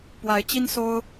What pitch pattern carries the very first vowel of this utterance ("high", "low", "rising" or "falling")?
rising